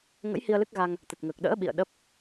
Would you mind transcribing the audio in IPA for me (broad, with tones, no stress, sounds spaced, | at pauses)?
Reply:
ŋ ə̰˧˥ j h i˧ ə̯ l ɨ˦˥ k̚ ɣ a˧ ŋ | t̪ ə˨˩ t̚ ŋ əː˨˩ k̚ ɗ ə̰ː˧˥ ɓ ḭ˧˨ ə̯ ɗ ə˦˥ p̚